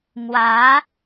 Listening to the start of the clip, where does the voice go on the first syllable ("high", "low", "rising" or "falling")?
rising